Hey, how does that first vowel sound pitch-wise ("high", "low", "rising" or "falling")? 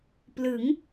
rising